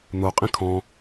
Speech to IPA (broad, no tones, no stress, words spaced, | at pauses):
n̪o qʼĩkʰɔ̃